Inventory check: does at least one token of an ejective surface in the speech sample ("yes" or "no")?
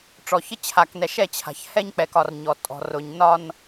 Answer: yes